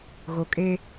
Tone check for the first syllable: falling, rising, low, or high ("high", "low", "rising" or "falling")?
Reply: low